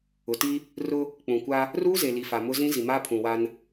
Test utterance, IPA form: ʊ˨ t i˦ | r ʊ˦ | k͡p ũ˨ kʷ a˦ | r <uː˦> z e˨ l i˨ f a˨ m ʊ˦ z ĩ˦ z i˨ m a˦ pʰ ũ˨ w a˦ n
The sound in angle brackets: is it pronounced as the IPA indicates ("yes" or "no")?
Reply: yes